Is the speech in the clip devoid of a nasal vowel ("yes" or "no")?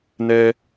yes